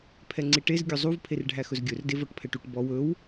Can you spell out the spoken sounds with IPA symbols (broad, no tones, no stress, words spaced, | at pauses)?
pʰɛŋ͡ǀiʈez ɡʲɵzˤuv pʰerɖʱæxɵzɡʲɵr devɔʈpʰɛʈuʈ bɔw ɵw